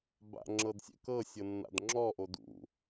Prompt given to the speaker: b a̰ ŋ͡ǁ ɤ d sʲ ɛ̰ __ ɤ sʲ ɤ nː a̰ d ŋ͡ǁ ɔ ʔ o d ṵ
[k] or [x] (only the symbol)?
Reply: k